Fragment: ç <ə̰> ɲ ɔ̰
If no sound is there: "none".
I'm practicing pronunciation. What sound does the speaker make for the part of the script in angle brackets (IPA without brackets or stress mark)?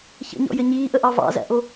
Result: ə̰